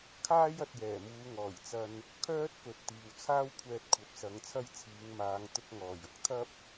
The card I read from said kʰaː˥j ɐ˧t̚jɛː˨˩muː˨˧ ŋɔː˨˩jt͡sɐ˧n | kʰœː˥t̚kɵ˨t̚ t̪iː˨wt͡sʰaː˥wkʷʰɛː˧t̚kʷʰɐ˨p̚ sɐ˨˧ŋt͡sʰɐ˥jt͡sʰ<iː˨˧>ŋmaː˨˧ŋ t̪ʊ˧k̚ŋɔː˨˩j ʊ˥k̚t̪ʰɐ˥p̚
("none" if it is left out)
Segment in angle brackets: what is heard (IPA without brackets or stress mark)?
iː˨˧